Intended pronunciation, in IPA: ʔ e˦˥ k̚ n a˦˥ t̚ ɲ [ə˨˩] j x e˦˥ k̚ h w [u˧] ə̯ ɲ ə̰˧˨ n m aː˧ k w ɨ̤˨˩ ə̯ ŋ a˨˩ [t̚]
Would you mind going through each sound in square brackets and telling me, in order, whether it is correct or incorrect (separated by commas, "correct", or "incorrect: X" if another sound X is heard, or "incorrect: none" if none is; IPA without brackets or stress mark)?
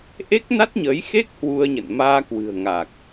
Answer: incorrect: ə˨˦, correct, incorrect: k̚